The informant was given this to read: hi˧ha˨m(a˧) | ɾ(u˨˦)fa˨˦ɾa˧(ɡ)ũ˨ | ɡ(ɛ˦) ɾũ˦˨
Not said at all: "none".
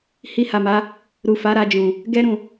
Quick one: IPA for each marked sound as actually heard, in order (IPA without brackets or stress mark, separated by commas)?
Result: a˨˦, u˨, d͡ʒ, ɛ˦